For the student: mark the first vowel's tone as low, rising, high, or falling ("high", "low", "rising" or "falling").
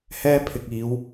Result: high